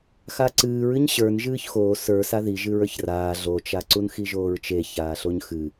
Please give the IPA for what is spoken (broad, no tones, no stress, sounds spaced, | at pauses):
x a ǀ ɨː ɹ ɨ ɲ ɕ ə˞ n ʒ ɨː ç x oː s ə˞ s a ð i ʒ ɨ ɹ ə˞ ç r aː ɮ o t͡ʃ a ǀ u n x i ʒ oː ɹ t͡ʃ e ç aː ɬ o ɲ x ɨ